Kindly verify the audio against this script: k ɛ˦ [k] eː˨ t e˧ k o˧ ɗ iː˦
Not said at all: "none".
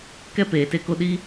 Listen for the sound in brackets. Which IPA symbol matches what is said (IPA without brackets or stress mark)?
p